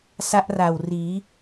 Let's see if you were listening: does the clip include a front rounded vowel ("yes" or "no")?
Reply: no